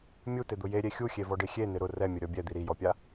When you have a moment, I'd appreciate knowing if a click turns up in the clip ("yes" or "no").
no